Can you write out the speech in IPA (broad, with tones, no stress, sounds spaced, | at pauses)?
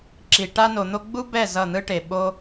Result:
ǁ i˨ ʈ a˧ n o˨ n̪ o˧ ɡ͡b u˦ b ɛ˦˨ z ʌ˦˨ n̪ ɯ˦ ʈ e˨ ɓ o˦